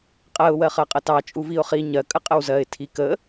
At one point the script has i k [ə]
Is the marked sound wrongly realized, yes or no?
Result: no